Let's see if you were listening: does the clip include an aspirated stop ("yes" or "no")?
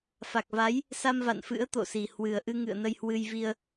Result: no